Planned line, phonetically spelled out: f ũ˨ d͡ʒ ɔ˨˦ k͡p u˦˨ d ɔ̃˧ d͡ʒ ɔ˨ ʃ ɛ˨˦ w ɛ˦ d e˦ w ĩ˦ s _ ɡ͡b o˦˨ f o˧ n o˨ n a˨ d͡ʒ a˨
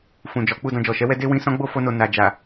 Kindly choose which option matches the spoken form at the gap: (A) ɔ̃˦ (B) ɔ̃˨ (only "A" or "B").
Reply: A